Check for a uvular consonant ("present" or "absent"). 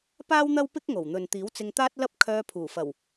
absent